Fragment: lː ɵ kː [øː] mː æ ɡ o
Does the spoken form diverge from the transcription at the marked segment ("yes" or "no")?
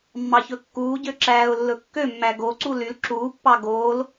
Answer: yes